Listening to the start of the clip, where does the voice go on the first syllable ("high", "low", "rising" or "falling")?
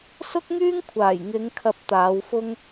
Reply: high